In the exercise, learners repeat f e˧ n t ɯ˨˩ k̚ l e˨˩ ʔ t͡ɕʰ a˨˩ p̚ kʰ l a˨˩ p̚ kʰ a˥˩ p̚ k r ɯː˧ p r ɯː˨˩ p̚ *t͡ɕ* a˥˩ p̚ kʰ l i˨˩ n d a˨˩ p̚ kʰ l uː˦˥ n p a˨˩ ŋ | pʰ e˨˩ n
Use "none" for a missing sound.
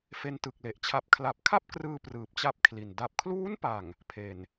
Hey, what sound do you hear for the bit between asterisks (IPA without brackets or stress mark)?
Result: t͡ɕ